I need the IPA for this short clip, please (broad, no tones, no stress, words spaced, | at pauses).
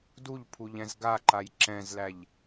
duʎpʰuʎɛ̃z ɡaǃaj ǁɛ̃zlæʎ